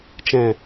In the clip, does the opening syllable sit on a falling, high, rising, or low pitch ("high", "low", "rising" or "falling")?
low